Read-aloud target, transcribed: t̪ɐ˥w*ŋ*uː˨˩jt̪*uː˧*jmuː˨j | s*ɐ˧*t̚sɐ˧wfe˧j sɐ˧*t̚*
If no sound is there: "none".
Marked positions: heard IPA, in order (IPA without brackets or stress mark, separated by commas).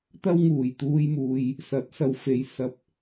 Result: ŋ, uː˧, ɐ˨˥, p̚